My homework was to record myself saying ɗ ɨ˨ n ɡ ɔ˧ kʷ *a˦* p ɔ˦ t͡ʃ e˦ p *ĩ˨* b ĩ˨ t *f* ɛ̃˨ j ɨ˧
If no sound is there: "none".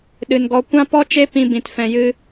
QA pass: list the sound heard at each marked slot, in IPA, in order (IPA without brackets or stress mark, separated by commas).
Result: ã˦, ĩ˧, f